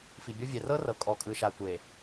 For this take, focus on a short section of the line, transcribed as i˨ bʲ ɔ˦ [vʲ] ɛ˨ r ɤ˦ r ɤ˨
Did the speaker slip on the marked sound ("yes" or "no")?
no